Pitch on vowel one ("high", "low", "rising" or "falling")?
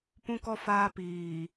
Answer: high